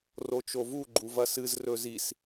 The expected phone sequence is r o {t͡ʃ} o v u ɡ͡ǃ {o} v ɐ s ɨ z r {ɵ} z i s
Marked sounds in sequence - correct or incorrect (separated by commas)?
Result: correct, incorrect, correct